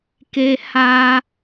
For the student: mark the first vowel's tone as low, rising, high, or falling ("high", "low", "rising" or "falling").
high